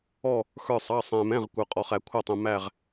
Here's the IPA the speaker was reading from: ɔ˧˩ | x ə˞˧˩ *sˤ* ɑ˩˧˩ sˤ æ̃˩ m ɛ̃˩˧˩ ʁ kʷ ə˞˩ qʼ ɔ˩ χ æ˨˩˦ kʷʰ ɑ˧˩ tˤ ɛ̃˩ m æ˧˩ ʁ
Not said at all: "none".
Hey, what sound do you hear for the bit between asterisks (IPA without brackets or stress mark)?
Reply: sˤ